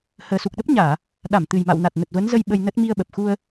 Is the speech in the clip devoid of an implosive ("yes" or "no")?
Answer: no